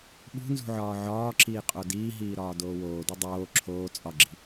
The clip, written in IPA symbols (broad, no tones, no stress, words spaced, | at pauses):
ɓṳnzṳʕɒː ʕɒːǁiːqʼo diːɦiːɾɒːdoː woːdu dˤoː ǁʰoː t͡sʼɒɡ͡ǁi̤